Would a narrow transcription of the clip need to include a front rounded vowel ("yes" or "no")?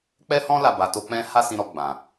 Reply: no